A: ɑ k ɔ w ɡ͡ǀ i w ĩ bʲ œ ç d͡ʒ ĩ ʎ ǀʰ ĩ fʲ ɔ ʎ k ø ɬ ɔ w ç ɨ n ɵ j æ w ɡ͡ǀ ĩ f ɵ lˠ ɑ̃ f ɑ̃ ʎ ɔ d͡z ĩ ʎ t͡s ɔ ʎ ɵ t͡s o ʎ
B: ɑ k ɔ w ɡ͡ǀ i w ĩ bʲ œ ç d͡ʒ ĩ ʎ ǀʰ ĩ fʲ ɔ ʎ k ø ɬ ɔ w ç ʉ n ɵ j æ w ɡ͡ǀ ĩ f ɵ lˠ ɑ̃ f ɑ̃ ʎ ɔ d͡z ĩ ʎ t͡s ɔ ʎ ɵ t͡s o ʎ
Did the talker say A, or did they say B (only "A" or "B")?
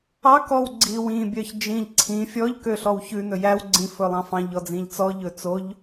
B